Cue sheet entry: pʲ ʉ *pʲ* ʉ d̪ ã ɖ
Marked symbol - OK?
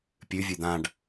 no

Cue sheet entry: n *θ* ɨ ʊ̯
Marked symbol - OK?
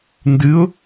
no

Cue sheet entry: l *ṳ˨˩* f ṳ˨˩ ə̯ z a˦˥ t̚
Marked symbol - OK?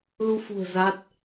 no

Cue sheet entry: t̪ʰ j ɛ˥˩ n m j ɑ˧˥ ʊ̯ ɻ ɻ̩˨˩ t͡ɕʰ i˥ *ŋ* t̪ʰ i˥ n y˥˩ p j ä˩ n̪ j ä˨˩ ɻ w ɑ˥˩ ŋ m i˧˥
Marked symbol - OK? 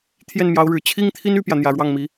yes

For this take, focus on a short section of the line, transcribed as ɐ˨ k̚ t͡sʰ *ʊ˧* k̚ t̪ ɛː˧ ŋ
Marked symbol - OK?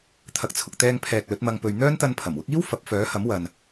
no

